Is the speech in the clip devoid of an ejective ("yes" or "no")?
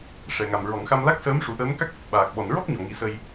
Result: yes